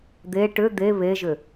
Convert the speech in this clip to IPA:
d̪ e ʈ ʏ d̪ e β e ʒ ʏ

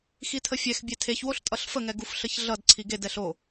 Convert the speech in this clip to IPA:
x i tʰ ə fʲ ɛ x bʲ e tʰ e ç w o ɬ tʼ ʌ ɬ f ə ŋ ɛ ɡ u f ɬ ə ç ɮ ʌ d ǀʰ i ɡ e d ɛ ɬ o

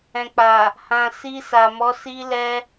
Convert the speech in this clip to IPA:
ɛ̃˨ k͡p a˨ | h ã˨ s i˧ s a˨ m ɔ˨˦ s i˧ l ɛ˧

